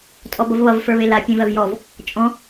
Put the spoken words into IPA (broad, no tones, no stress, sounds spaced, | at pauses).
tʼ ɔ b ʌ v β ʌ v f ə˞ β e l a pʲ ẽ v ɜ v j ɔ v | t͡ʃʼ ɔ̃